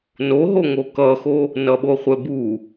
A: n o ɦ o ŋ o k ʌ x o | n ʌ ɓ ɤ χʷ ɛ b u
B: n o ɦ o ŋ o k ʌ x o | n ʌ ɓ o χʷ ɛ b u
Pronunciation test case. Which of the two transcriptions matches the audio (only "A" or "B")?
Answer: B